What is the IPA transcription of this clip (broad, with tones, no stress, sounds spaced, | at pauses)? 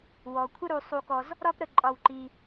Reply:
w ɔ˩ kʷʰ ə˥ ɾ u˧ sˤ u˧ k ɔ˧ z | ɾ ɒ˥ p ɾ ə˧ ǃʼ ɒ˧ w ǃ i˧